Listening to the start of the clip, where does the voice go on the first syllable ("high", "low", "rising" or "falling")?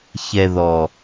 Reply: low